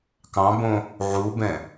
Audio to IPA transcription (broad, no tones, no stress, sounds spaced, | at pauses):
k ɑ̃ b õ | ʕ u b ɛ̃